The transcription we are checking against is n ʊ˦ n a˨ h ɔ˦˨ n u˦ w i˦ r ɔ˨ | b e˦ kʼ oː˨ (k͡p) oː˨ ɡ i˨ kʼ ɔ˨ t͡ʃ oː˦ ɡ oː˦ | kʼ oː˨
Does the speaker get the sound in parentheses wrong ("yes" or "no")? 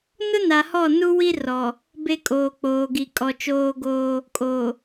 no